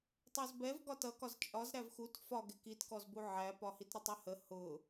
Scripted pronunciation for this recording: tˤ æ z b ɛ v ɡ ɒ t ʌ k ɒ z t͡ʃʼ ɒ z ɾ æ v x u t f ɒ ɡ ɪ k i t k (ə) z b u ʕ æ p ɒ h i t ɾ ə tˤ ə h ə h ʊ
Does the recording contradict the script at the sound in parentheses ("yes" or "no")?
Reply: yes